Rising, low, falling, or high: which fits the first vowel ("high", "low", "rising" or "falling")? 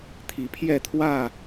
rising